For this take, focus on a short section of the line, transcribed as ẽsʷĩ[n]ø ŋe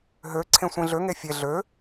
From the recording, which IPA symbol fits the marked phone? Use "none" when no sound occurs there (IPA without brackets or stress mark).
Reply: ɮ